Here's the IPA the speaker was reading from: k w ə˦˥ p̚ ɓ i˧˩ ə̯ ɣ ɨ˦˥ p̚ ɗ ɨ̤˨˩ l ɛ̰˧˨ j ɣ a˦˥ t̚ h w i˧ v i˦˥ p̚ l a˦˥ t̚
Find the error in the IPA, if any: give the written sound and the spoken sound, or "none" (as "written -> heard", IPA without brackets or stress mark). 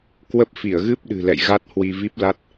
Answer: ɓ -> f